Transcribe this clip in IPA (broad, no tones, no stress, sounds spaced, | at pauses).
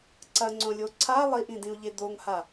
ǀ ɐ ŋ͡ǀ õ lʲ o ǀʰ a lˠ i ʔ ĩ d ĩ u̯ ʎ e d̪ o ŋ h a